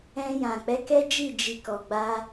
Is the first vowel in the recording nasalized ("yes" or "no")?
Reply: yes